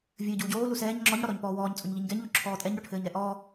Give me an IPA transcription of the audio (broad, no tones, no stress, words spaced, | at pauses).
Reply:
vʲɘːɟuːɟoː lusɛːɲ ŋ͡ǁɔɲ ɽɔɾɔɲpɔːwɔːɲ t͡sʼoɲʎiɲɡɛɲ ʎoǁʰɔːtʼɛɲ ɽoʈʰɘːɲɾɛʔɔː